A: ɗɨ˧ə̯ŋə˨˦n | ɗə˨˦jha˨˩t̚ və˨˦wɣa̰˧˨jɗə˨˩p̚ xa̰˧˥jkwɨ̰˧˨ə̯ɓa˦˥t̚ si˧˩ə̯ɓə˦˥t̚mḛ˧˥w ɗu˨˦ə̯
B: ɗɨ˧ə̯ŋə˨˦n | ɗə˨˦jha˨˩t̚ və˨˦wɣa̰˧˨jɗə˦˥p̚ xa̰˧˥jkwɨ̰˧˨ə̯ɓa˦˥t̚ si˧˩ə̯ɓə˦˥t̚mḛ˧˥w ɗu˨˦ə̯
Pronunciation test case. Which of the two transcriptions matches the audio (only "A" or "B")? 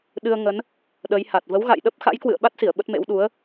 B